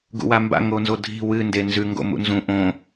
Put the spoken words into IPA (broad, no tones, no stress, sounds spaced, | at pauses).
ɡ ṵ w a m b a̰ ŋ o n z o dʱ i̤ w ɨ n d e n z ʉ ŋ ɡ o̰ m ṵ n z ũ ʔ õ